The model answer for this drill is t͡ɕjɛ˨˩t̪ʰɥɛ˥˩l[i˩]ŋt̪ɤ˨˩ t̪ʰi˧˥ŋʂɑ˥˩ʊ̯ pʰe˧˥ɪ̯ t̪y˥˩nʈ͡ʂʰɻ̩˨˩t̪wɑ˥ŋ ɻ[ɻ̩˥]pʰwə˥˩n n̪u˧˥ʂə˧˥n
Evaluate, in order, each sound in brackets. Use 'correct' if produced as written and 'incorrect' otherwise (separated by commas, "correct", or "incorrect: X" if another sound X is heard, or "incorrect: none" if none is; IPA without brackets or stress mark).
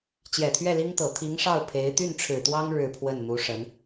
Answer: incorrect: i˥, incorrect: ɻ̩˥˧